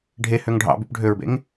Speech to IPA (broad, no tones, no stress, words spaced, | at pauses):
ɖʱehøŋ ɖʱɑ̰byp ɖʱøɹbḛŋ